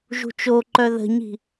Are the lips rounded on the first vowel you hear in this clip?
yes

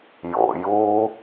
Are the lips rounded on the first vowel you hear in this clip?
yes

